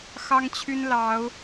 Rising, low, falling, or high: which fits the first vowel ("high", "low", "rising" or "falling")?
high